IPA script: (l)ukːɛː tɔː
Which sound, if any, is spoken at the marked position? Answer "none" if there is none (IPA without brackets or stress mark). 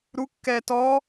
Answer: ɾ